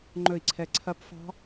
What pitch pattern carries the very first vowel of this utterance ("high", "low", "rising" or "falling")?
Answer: falling